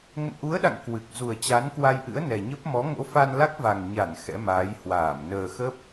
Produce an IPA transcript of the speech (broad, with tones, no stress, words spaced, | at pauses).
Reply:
ŋə̰˧˨nʔu˨˦ə̯ɗa̰˧˨ŋ kwɨ˨˩k̚ zu˨˩ə̯t͡ɕa˨˦nkwa˧jʔɨ̰˧˥ə̯ nɛ˨˩ɲə˦˥p̚ mɔ˨˦ŋo̰˧˥fa˧nla˦˥k̚ va˨˩ŋɲa˧˩n xɛ̰˧˥maː˨˦j hwaː˧˩m nəː˨˩xə˦˥p̚